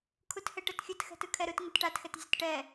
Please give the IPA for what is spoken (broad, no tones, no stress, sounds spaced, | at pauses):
kʰ u t h ɛ ʈ ɤ t xʲ ɯ t x ɛ̤ t ɯ kʰ ɛ ɾ ɯ t ŋ ɤ t ʈ a t x ɛ t zʲ ɯ t ʈ ɛ